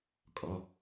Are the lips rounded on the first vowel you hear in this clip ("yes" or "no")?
yes